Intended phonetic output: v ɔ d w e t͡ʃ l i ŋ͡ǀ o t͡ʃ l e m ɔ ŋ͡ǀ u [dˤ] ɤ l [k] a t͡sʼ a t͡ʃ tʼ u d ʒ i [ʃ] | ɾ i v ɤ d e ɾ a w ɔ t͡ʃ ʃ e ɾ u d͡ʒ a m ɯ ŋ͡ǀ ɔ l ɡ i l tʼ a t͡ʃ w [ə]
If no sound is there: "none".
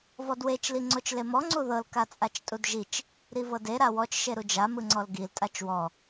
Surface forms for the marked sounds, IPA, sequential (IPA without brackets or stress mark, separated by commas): ð, k, t͡ʃ, ɔ